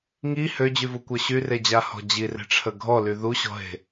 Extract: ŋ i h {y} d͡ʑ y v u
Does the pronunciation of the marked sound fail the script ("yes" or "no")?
yes